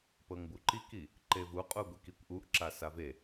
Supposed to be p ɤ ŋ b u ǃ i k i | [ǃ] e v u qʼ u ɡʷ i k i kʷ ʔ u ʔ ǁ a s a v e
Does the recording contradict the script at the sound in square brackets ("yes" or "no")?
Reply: no